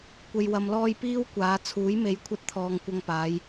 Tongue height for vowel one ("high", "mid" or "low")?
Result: mid